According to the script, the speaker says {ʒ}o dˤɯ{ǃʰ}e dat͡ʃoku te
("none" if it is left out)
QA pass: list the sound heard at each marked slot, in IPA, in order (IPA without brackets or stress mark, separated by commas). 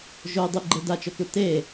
ʒ, ɡ͡ǃ